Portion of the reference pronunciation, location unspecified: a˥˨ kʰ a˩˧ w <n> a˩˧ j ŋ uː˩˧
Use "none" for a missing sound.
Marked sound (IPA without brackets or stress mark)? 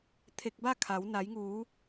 n